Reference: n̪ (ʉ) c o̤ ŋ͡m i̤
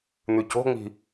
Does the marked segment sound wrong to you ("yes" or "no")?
no